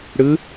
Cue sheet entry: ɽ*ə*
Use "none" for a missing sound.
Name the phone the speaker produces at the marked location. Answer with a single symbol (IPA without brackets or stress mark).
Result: ɯ